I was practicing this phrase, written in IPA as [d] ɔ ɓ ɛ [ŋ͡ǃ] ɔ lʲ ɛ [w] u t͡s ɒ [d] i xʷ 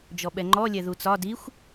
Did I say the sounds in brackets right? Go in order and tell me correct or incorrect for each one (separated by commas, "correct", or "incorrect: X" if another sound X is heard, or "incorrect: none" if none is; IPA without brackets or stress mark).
incorrect: d͡ʒ, correct, incorrect: ð, correct